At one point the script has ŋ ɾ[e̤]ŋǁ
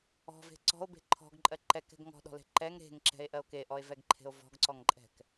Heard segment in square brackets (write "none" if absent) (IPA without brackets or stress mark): e̤